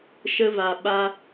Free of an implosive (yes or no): no